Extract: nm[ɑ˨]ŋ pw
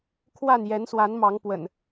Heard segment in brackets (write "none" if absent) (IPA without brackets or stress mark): ɑ˨˦